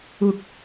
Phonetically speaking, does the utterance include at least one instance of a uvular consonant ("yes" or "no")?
no